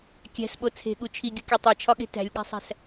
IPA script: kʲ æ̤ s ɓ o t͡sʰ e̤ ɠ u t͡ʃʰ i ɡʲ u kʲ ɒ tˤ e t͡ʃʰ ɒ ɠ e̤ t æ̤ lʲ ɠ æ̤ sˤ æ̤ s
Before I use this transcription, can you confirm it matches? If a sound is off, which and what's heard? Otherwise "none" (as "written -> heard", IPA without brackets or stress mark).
none